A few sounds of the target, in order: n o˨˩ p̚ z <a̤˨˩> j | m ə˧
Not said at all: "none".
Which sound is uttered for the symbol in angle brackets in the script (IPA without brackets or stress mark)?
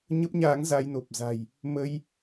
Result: a̤˨˩